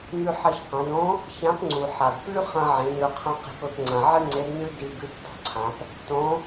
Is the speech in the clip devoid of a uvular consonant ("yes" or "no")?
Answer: no